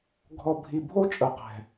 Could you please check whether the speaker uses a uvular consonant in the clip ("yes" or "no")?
yes